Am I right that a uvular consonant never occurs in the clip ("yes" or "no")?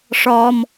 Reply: yes